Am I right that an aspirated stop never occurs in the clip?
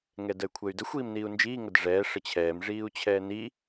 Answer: no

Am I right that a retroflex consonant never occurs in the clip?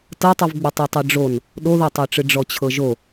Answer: no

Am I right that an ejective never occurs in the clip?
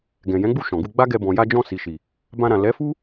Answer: yes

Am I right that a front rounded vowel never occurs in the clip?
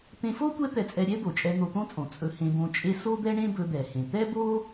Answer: yes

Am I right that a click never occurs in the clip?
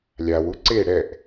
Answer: no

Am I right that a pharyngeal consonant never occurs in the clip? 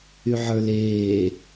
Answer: no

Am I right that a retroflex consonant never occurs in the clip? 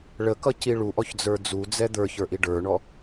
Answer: no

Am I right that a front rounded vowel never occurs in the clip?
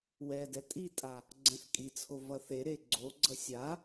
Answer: yes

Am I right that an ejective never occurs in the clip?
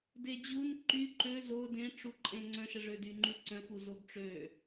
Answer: no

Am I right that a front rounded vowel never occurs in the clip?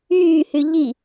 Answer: no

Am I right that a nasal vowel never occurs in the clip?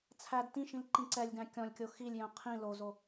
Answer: no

